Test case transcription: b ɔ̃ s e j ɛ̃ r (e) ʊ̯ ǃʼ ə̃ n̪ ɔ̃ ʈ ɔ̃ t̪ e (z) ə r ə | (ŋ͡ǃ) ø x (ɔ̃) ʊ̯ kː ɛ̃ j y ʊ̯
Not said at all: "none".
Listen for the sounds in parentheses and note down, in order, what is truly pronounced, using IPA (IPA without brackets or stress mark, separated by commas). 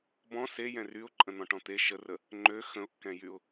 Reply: y, ʃ, ŋ͡ǃ, ə̃